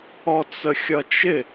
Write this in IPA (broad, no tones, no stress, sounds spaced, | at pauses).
ɔ t͡s ə xʲ ʌ t͡ʃ ɪ